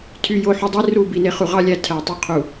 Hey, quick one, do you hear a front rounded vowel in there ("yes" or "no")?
yes